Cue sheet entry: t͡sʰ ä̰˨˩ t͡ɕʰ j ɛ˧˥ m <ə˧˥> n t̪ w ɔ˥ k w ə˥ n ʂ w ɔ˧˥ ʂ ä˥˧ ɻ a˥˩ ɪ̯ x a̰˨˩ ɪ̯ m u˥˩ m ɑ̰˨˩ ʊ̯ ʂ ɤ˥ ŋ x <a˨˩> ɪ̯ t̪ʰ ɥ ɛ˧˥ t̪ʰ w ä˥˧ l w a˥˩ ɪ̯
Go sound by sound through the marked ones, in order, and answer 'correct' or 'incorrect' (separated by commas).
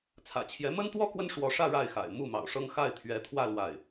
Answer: incorrect, incorrect